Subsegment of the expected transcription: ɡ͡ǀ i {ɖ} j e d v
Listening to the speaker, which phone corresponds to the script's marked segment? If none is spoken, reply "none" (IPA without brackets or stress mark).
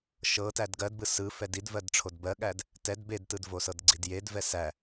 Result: d